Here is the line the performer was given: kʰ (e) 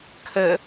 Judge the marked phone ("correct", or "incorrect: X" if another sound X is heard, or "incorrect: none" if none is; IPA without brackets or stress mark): incorrect: ɘ